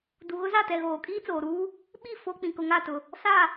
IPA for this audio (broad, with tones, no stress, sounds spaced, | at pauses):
d u˨ ɣ ʊ˦ z a˦˨ t ɛ˨ ɣ oː˨ kʼ iː˦ t͡s oː˨ ɾ uː˦ | ɓ i˦˨ f o˦ k͡p ĩ˨ k ʊ˨ ŋ a˦˨ t ʊ˨ | s a˦˨